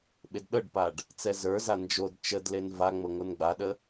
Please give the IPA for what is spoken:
ɓ e d ɗ ɤ ɖ p a ɖ | t͡s ɛ z ə˞ z a n d͡ʒ o d t͡ʃ ə d l e n v a ŋ͡m ɤ ŋ o n ɡ͡b a ɗ ə

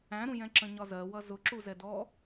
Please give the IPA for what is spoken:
æ̃ ɾ ũ j ɛ̃ ǁ ə̃ ɲ ɒ z ɜ w ʌ z ʊ ǁ u z ɛ d ɔ

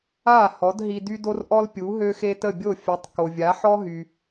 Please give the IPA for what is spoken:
a˥˩ h ɔ˩˥ d ɦ i˧ d y˥ d o˥ r ʔ ɔ˥ l pʲ u˩˥ ɦ ø˥ x e˥ t ə˥˩ bʲ o˥˩ fʲ ɛ˩˥ tˤ k o˩ vʲ a˩˥ ħ ɔ˥ ɦ y˩

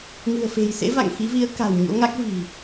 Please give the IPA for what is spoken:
ŋ ɨ̤˨˩ ə̯ f e̤˨˩ j s ḛ˧˥ v a̰˧˨ ŋ x i˨˦ v i˨˦ ə̯ k a̤˨˩ w ɲ o̰˧˥ ŋ a˦˥ k̚ v i̤˨˩

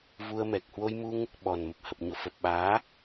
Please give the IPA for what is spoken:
v u˧ ə̯ m ɛ˨˩ k̚ h w o˧ j m u˧ ŋ | ɓ ɔ˨˩ n m ə˨˩ p̚ h ə˨˩ p̚ ɲ o̰˧˨ f ə˨˩ p̚ ɓ aː˨˦

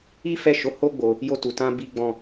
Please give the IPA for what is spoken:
i˦ f ɛ˦˨ ʃ o˨˦ h o˦ ɡ͡b o˧ | j o˧ t u˨ t ã˧ b i˧ ɡ͡b ɔ̃˧

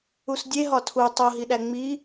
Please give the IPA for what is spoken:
u s dʲ e ɦ ɒ tʰ u tˤ o ɦ i ɗ æ ŋ͡m i

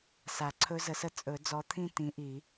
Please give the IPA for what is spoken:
s a˨˩˦ ǀʰ ɵ˦˥ z ə˨˩˦ s ə˥˧ t͡sʼ ɵ˨˩˦ d͡z ɔ˨˥ t̪ʰ ĩ˥˧ t ĩ˨˥ ʔ i˨˩˦

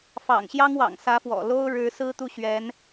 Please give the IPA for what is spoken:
f ɑ̰˨˩ ŋ ɕ j ɑ˥ ŋ w ɑ̰˨˩ ŋ s ä˧˥ f w ɔ̰˨˩ l o˥ ʊ̯ ɻ ɻ̩˧˥ s ɹ̩˥ t̪ u˥˩ ɕ ɥ ɛ˧˥ n

